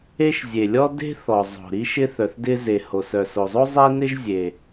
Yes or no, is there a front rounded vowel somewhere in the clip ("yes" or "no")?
yes